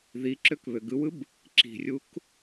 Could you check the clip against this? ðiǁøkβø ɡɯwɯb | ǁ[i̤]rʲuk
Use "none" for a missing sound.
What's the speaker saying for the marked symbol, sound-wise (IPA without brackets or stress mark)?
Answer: i̤